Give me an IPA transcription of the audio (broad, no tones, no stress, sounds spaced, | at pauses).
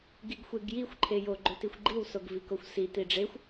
ɡ i ɡ xʷ e ɡ j i xʷ ǃʰ e j o ɡ͡ǃ ɵ t i xʷ ɡ͡ǃ i w s o ɡ v i k o xʷ s i t i ɖ͡ʐ e xʷ